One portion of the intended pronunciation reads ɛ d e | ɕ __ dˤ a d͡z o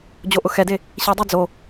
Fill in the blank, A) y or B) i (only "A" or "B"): B